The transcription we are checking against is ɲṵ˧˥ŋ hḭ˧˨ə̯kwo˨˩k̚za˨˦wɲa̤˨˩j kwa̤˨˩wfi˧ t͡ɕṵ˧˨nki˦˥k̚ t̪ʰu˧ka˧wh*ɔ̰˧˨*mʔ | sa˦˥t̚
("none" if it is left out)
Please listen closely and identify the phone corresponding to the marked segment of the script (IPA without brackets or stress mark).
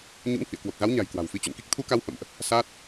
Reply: ə̰˧˨